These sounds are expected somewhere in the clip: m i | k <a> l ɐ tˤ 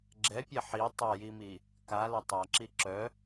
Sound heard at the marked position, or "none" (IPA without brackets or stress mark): a